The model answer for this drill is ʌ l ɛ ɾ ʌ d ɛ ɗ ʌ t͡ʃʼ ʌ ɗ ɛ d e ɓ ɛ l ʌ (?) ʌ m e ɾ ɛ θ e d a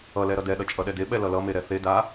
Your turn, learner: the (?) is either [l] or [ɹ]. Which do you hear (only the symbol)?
l